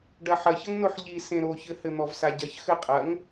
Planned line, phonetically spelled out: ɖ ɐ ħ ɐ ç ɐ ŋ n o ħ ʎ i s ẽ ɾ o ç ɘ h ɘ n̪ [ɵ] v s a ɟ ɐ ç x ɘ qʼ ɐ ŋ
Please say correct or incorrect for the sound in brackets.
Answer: incorrect